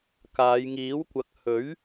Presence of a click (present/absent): absent